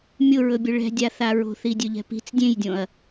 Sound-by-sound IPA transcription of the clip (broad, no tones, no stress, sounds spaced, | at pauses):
mʲ ʊ ɹ ɵ bʲ ʊ ɭ ɛ̤ dʲ a θ a ɹ o̤ θ i dʲ ɵ ʎ ɛ̤ p i̤ t͡s dʲ ẽ j dʲ õ ɐ̯